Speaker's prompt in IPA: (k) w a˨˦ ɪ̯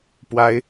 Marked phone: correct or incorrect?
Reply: incorrect